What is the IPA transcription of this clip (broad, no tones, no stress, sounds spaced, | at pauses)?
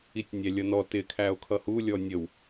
i tʲ nʲ æ lʲ ʌ n ɔ t ɪ kʰ æ o̯ kʰ ʌ h u lʲ ɔ nʲ ə w